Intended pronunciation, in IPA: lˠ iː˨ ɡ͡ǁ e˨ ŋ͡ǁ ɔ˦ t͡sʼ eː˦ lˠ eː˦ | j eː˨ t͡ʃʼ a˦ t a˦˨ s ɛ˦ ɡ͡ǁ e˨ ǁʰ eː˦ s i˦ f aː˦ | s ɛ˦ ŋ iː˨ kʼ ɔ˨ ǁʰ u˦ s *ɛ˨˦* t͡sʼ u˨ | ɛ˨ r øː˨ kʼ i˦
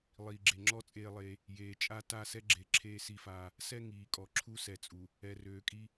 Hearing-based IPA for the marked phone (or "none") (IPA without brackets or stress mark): ɛ˨